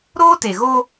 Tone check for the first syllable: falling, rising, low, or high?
high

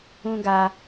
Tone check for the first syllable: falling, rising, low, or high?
high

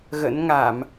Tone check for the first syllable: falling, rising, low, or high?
rising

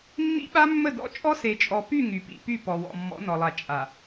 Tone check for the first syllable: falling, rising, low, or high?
high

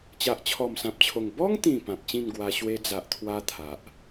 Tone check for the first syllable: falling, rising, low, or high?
low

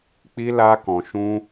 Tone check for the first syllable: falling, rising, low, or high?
high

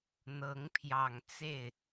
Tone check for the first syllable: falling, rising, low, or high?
rising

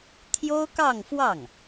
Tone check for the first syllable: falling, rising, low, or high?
high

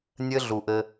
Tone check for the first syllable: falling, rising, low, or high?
high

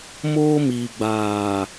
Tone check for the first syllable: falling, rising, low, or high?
high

